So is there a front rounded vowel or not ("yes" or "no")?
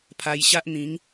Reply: no